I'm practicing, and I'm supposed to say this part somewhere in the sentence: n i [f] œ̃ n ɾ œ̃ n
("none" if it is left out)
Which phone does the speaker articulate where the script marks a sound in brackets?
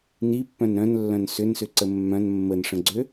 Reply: pː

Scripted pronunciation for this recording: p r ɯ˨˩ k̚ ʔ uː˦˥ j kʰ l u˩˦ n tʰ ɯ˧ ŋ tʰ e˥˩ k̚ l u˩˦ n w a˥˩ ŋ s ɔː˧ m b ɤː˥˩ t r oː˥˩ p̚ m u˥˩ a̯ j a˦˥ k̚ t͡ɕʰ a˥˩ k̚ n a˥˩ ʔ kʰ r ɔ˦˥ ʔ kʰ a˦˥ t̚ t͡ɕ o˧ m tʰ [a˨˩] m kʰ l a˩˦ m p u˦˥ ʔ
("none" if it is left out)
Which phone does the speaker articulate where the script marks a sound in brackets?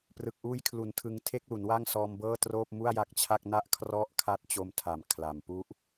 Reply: a˨˩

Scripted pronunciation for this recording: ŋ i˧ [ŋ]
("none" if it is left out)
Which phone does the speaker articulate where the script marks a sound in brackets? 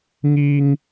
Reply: ŋ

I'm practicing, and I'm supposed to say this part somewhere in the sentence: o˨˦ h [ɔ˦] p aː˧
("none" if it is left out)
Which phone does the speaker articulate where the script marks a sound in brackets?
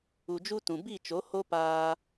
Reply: o˦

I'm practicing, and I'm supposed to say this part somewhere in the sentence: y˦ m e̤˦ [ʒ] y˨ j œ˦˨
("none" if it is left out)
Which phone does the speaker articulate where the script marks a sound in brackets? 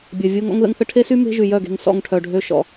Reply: ʒ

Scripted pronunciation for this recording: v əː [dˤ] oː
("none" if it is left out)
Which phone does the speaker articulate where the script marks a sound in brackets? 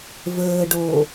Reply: ɖ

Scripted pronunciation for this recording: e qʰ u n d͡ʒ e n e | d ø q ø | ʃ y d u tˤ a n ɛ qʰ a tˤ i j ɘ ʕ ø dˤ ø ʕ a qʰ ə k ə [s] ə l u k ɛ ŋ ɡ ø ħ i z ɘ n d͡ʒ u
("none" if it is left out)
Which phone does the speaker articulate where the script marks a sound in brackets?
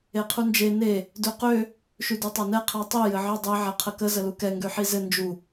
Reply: z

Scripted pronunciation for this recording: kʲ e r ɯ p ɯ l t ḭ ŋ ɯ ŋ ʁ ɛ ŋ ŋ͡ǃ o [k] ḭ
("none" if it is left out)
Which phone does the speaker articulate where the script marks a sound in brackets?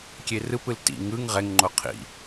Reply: qʰ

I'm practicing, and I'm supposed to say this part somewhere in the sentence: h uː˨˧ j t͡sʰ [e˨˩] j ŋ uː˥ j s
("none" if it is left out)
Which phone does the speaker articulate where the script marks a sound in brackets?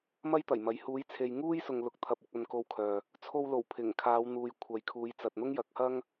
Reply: e˨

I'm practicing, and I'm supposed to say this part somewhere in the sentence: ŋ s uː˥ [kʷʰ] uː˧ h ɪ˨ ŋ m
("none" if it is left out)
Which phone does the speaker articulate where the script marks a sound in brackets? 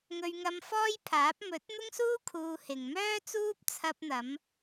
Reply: kʰ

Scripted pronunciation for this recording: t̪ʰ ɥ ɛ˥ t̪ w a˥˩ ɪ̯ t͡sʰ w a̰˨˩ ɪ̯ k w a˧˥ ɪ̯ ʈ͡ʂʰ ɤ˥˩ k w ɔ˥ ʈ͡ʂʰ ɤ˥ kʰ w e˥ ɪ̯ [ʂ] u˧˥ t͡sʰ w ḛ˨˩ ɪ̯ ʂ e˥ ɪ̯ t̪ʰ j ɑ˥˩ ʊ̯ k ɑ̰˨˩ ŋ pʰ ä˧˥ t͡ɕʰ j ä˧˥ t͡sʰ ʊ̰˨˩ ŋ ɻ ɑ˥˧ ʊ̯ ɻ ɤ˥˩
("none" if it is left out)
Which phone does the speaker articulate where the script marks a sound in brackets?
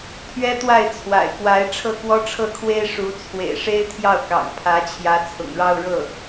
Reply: ʂ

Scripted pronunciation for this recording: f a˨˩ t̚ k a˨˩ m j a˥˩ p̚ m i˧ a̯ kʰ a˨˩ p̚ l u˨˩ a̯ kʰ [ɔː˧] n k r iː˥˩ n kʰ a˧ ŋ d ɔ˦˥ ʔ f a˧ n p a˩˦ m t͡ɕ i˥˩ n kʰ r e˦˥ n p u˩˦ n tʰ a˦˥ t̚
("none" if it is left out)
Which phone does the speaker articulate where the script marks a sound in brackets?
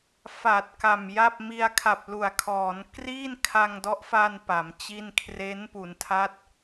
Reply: ɔː˩˦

